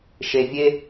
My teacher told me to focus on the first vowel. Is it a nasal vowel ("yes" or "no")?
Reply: no